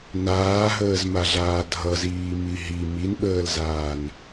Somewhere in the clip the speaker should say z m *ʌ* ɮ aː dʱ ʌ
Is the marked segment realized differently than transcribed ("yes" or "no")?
yes